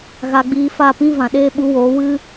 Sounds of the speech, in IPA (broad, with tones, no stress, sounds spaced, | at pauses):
ɣ a˧ ɡ͡b iː˧ f a˦˨ p ĩ˦ v ã˨ ɗ eː˦ ɓ u˨˦ w oː˨˦ w ɨ˦